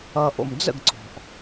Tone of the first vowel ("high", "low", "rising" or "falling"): low